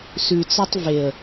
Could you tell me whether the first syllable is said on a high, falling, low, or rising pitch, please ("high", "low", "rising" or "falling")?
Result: low